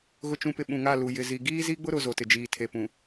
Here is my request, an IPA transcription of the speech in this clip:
ɣ ʊ˨ t͡ʃ ũ˨ p ɪ˨ ɓ ũ˨ ŋ a˦˨ l u˨ j ɪ˨ z i˨ ɡ iː˦ z i˦ ɡ͡b ʊ˦ ɾ ʊ˨ z o˨ t ɪ˨ d͡ʒ iː˨ tʰ e˨ p ũ˨

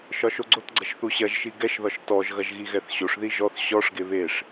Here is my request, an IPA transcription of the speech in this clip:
ʃ ɒ ʃ o ɡ͡ǀ o t ɡ͡ǀ ɐ ʃ θ u ɕ ɐ ʒ ʃ i ɡ ɛ ʃ ð ɒ ʃ t ɔ ʒ ɣ ɐ ʒ ɣ i ɣ ɛ θ ɕ o ʂ ð i ʒ ɔ θ ɕ ɔ ʂ ɡ e β e ʂ

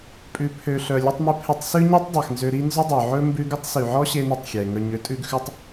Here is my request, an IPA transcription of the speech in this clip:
pʼ ʉ˩ pʰ ø˩ ɬ œ˩ lʲ ʉ˧ tˤ m ʉ˧ pʰ e˧ tˤ s ʉ˥ ɲ i˥ tˤ dˤ ɛ˩ x n z ø˧ ɾ i˥ n z ɵ˥ dˤ ø˩ ʕ ɵ˥ m b ʉ˥ ɡ ɵ˥ tˤ s y˩ ʕ ɔ˥ ɕ e˥ n i˧ tˤ xʲ ɛ˩ ŋ œ˧ ɲ ø˥ tʼ ʉ˥ ɡ x ʉ˥ tˤ

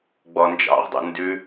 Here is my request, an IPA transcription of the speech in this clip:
ɡ͡b ɔ n d͡ʒ ɑ̰ ʁ dˤ ṵ n d ʉ

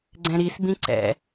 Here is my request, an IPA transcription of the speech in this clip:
ɡ͡ǀ ɛ̃ ɾ i s b ĩ ǀ ɛ̰

